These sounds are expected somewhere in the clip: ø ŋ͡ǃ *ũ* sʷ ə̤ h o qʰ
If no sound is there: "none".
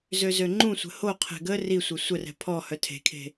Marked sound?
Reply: ũ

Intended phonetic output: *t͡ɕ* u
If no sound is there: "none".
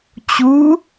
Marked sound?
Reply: t͡ɕ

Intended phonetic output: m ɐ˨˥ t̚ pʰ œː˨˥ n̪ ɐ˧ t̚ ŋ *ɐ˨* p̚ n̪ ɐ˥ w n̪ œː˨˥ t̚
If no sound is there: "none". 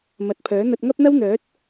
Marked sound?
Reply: ɐ˥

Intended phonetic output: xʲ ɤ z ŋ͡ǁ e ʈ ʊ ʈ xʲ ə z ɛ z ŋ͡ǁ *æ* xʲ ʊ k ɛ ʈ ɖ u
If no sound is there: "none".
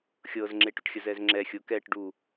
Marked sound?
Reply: ɛ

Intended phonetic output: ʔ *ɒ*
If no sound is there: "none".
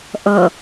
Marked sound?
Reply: ʌ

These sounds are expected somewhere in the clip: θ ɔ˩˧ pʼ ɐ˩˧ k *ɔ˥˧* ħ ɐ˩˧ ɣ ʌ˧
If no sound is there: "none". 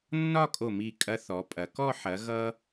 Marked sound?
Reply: ɔ˥˧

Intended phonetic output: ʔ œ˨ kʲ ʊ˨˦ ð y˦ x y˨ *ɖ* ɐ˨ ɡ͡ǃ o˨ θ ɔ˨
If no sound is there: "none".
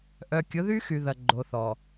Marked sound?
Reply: ð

